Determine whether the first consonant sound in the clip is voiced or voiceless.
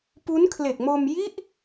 voiceless